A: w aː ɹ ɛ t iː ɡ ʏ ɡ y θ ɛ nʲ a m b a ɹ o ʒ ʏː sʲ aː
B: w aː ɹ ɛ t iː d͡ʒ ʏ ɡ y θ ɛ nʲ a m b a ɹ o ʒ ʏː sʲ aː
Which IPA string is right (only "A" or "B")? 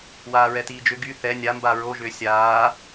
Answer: B